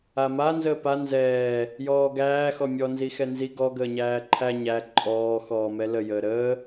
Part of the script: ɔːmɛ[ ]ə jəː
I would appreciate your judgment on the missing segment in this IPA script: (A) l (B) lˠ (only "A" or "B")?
A